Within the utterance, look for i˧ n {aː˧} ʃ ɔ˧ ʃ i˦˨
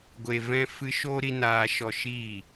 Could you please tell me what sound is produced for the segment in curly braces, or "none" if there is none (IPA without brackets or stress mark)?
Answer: aː˧